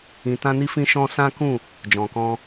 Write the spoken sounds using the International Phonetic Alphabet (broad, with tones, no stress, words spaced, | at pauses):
ĩ˧tã˦ni˦ fĩ˦ʃɔ̃˦ sã˦kũ˦˨ | d͡ʒɔ̃˨kɔ̃˧